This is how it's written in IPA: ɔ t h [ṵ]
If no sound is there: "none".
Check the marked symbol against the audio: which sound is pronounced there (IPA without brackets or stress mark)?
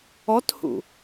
ṵ